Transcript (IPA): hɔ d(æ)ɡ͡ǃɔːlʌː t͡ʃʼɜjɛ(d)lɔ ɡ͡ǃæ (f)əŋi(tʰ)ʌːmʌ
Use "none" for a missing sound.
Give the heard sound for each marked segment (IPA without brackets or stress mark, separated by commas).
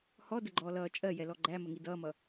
ə, none, m, d